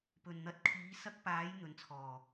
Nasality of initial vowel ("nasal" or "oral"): oral